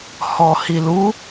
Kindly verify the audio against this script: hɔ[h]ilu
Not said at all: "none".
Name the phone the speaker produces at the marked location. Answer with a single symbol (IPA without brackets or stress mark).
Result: h